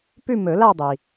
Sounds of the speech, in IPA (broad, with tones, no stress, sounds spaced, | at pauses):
p ʉ˥˧ m ɵ˨˩˦ l a˥˧ dˤ i˩